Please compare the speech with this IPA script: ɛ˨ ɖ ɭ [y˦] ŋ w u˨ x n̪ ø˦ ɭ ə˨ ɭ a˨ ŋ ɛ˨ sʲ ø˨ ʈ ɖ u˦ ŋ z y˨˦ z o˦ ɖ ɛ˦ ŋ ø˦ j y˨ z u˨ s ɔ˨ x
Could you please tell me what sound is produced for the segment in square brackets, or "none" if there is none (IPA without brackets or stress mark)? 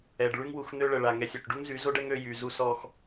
y˦